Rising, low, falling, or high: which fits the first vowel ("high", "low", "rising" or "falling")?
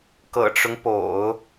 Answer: low